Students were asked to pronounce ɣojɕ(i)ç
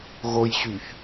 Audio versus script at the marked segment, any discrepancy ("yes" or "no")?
yes